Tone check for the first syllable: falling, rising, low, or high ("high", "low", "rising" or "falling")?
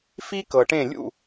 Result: high